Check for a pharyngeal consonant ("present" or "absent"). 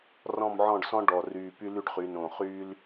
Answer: present